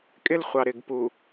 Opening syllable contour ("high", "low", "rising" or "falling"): high